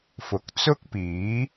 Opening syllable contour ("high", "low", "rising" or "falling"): rising